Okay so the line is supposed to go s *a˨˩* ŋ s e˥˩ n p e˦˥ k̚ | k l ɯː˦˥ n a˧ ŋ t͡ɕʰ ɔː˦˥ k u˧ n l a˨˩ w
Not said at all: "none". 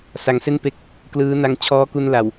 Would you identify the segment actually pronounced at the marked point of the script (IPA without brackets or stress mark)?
a˨˩